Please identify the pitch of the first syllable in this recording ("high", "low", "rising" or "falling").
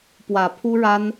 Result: low